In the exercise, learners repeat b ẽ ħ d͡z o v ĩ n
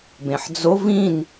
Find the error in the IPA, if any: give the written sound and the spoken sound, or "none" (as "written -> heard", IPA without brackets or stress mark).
none